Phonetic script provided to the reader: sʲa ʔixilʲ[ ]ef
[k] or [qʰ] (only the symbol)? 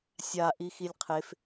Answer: qʰ